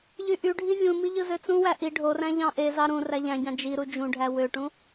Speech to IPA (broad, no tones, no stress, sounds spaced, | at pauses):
ʎ y ʔ y ɖʱ i vʲ ũ m i ʎ ɯ z ø t͡s ũ w æ ʔ i ɖʱ o r æ̃ ʎ ɑ̃ ʔ e z ɑ ɾ ũ r æ ʎ æ̃ ɟ ɑ̃ d͡ʒ i ɾ u d͡ʒ ũ ɖʱ æ w ø ʈ ũ